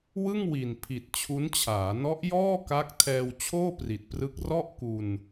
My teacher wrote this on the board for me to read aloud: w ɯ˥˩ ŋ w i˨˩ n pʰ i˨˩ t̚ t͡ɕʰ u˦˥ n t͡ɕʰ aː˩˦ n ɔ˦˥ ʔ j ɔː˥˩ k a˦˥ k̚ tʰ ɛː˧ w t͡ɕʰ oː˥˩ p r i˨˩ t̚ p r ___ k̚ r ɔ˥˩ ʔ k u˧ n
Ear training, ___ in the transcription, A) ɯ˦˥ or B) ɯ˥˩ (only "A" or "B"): A